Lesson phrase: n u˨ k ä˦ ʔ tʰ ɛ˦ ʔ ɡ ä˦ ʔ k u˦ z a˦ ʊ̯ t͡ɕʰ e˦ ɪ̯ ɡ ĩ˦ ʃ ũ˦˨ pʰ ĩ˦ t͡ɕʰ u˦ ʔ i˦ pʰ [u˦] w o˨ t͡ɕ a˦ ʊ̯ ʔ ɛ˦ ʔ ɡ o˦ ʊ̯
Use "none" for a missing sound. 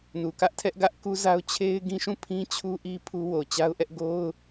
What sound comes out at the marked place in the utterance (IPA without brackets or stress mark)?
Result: u˦